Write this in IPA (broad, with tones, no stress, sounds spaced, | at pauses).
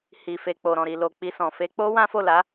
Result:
h i˨ f e˨ k͡p o˨ ɾ ɔ̃˨ ɾ i˨ l o˨ k͡p i˧ s ɔ̃˨ f e˨˦ k͡p o˦ w ã˦ f o˦˨ l a˨˦